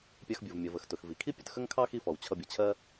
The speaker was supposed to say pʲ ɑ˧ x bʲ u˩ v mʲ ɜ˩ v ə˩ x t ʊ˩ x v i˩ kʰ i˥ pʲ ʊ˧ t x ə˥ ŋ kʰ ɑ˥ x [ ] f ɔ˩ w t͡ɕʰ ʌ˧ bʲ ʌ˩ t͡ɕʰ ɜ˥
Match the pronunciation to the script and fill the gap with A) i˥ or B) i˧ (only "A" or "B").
B